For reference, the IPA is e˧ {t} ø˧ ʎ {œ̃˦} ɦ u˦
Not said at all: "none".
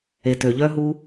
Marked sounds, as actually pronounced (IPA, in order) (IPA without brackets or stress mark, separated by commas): t, œ˦